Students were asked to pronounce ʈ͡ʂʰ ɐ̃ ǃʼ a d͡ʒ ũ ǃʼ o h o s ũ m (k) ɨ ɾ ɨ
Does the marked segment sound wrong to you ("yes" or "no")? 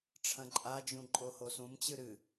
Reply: yes